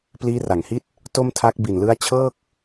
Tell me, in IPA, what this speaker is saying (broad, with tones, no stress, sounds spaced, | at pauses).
p l iː˦˥ r a˨˩ ŋ h i˥˩ t̚ | t o˥˩ m tʰ a˦˥ k̚ b i˨˩ n l ɯ˦˥ a̯ t͡ɕʰ ɤː˥˩ k̚